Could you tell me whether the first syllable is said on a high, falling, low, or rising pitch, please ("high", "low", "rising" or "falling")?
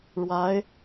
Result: rising